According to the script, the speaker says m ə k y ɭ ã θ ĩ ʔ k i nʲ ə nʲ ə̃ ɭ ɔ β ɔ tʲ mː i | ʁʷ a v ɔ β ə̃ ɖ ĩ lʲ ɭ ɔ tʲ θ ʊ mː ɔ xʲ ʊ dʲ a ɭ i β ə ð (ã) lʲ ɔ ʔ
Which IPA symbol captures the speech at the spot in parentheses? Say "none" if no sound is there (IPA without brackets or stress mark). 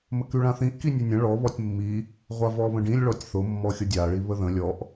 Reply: ə̃